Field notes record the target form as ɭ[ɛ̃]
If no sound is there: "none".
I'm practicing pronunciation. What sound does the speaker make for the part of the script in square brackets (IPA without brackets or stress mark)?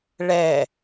ɛ